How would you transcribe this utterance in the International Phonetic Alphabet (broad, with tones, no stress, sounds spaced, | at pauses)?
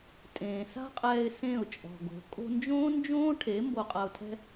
tʼ ẽː˨ s a̤˦ qʼ ɛː˧ ɪ̯ s ẽ˦˨ ʊ̯ t͡ʃʼ ɔ̤˨ ɡ o̤˨˦ kʼ o̤˧ n d͡ʒ õː˦ n d͡ʒ õː˦ ʈʰ e˨˦ m b o˧ qʼ a˧ ʊ̯ tʰ ɛ̤˦